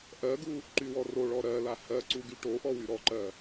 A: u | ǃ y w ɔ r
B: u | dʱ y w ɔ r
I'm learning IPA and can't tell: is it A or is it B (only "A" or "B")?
A